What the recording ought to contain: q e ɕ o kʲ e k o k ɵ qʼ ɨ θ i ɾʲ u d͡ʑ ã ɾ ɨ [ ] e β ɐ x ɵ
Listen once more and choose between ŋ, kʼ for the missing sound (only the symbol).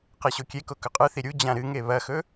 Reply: ŋ